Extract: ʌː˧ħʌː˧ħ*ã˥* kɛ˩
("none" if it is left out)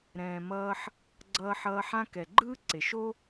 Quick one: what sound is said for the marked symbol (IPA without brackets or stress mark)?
ã˥